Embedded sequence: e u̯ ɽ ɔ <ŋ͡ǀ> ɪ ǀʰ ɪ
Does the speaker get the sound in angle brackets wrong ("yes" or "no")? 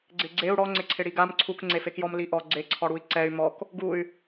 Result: no